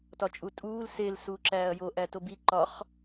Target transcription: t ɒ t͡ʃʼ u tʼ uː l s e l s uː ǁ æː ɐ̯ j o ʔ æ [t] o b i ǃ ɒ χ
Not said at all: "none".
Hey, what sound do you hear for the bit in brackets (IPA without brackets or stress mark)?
t